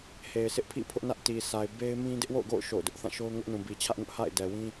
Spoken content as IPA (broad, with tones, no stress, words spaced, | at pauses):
he˨ɪ̯sʰɪ˦ʔpʰḭ˦˨ pʰʊ˦ʔnä˦ʔti˨ sʰa˨ɪ̯be˦ɪ̯mĩ˦ dɪ˦ʔwo̰˦˨ʊ̯ɡo̰˦˨ʊ̯ ʃo̰˦˨ʊ̯dʊ˦ʔ θã˦˨ʃo˦ʊ̯ ŋʊ˦ʔnũ˨ bi˨t͡ɕʰä˦ʔŋʊ˦ʔ ha̰˦˨ɪ̯dɛ˨wĩ˦